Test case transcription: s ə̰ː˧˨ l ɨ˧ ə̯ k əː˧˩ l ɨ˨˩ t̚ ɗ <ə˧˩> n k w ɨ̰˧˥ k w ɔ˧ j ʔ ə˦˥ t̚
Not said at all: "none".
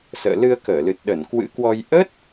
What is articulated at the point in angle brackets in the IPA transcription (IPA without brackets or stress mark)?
ə˧˩